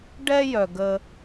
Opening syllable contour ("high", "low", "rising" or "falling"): high